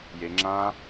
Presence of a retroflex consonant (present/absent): absent